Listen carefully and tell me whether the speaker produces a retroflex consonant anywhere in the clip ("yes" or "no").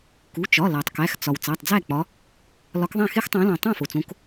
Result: no